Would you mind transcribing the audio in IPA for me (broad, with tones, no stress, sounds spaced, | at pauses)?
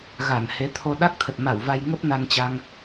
ɣ a˧˩ n h e˨˦ t̪ʰ o˧ ɗ a˦˥ k̚ t̪ʰ ə˨˩ t̚ m a˧˩ w v a˧ j ŋ ə˦˥ p̚ n a˧ n t͡ɕ a˧ ŋ